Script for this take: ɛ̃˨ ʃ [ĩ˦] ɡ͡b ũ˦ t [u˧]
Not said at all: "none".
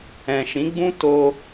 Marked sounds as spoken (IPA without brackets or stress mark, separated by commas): ĩ˨˦, o˧